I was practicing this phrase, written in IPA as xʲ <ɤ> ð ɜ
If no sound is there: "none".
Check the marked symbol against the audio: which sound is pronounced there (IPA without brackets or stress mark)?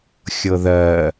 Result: ɤ